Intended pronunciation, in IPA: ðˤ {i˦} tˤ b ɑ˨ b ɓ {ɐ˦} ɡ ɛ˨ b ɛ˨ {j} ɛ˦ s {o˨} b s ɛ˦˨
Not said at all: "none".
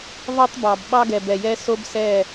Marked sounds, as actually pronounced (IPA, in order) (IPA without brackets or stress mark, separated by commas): e˦, ɑ˦, j, o˦